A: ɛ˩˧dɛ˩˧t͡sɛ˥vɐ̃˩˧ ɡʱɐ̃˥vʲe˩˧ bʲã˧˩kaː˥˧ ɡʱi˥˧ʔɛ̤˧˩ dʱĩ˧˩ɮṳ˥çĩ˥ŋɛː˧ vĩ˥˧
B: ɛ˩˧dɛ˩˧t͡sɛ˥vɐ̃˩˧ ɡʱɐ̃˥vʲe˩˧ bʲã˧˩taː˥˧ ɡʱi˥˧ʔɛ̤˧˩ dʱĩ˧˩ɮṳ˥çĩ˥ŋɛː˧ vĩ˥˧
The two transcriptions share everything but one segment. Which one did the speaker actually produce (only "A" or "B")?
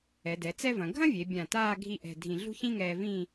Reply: B